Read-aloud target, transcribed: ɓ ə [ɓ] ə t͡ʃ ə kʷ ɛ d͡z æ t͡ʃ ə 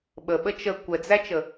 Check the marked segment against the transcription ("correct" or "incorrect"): correct